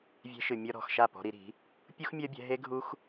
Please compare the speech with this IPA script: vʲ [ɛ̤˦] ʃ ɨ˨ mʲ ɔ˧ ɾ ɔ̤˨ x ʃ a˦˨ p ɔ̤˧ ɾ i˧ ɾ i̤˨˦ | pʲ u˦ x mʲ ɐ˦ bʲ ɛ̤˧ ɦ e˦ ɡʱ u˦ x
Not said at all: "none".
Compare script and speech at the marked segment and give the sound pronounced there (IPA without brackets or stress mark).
ɛ̤˧